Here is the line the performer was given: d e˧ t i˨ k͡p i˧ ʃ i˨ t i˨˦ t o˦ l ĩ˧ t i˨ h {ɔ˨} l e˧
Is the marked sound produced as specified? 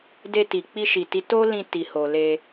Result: no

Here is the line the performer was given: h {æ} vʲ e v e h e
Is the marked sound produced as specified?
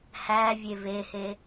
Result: yes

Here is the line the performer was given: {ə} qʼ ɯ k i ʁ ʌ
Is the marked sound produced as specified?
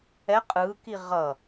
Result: no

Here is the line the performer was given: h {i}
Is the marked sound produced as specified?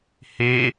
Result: no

